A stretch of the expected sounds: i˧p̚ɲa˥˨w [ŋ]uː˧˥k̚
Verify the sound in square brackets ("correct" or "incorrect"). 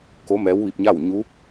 incorrect